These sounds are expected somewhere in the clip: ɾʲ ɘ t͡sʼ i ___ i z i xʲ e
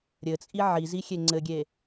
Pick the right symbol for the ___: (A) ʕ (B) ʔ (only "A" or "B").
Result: A